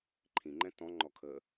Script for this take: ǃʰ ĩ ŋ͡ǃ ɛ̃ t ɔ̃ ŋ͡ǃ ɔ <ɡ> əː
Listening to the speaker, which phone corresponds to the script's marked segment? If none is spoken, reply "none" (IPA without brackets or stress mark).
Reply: kʰ